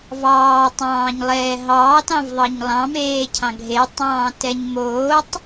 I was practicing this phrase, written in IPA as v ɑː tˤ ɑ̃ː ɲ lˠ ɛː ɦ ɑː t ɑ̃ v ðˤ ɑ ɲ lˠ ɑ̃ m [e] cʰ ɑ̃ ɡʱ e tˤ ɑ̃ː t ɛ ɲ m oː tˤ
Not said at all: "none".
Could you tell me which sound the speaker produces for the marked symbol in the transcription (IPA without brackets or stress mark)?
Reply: eː